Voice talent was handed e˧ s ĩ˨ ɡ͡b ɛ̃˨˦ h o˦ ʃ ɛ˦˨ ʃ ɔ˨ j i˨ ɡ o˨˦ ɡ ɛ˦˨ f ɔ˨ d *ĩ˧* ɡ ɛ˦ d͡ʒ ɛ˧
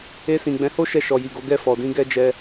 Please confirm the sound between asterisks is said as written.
yes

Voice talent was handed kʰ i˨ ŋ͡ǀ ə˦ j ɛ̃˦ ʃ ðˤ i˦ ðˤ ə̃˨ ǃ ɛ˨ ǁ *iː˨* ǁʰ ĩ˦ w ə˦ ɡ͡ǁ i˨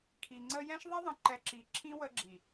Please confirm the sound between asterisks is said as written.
no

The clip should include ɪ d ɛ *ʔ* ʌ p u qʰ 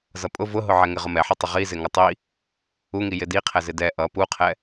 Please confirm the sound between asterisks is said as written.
yes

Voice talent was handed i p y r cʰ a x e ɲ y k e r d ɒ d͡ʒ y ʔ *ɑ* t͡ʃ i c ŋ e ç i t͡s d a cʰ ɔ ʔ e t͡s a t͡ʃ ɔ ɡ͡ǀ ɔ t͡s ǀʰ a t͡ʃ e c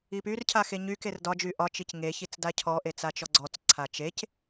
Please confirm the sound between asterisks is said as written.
no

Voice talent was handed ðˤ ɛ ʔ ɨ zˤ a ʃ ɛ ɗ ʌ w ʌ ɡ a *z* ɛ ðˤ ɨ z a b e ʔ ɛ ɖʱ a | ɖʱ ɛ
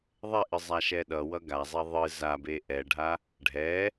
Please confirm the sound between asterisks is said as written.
no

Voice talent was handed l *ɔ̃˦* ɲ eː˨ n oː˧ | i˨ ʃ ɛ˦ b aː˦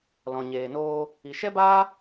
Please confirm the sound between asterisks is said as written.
no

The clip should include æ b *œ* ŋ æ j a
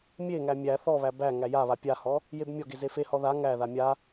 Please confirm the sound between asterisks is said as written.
no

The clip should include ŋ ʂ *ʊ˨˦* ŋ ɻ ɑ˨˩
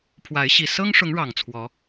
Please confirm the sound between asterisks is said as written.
yes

